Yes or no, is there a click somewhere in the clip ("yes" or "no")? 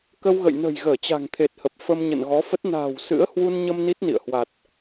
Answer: no